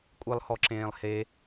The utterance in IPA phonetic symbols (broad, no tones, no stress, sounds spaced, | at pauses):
kʷʼ ɨ lˠ h ɔ ǁ ẽː lˠ h e